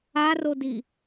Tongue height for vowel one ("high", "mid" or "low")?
low